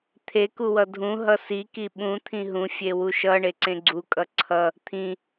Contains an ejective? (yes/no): yes